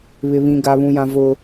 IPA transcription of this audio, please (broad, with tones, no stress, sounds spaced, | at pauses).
β ɪ˨ β ĩ˨ ɡ aː˨ β ũ˨ j ã˨ v ʊ˦